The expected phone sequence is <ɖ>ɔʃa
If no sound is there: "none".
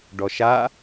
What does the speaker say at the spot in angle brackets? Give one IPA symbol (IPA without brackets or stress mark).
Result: ɖ